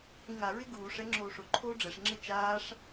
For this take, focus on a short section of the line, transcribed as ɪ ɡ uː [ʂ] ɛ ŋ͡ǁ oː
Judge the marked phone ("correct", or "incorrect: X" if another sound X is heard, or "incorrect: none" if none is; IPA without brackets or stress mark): correct